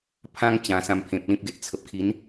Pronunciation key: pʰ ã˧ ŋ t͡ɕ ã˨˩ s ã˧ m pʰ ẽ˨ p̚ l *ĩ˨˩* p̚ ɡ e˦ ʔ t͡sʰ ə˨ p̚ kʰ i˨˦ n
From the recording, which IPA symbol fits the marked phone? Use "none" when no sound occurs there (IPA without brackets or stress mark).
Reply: ĩ˦